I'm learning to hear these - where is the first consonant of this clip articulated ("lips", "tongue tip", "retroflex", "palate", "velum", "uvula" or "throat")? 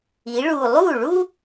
retroflex